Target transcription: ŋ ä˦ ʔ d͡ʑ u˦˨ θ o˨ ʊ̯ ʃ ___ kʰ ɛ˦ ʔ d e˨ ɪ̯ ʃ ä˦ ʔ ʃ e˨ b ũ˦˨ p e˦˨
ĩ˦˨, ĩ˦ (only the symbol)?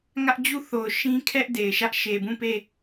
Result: ĩ˦